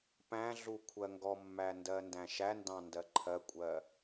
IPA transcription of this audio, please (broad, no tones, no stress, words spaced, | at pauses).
pæ̃ɮu kʷʰɜŋɡɔmːæ ndɜndæ̃ʃændɑ̃ ndɜǃʰɜkʷʼɜ